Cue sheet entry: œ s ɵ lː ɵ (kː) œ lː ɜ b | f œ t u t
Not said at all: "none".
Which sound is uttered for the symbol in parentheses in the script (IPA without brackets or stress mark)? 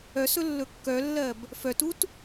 kː